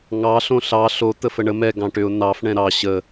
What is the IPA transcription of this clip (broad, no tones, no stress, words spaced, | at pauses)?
ŋɑ ɬõɬɑ ɬo t̪əfəɳə mɛ ɡɑ̃ʈʏʊ̯ nɑf ɳɛ̃ɾɑ ɕə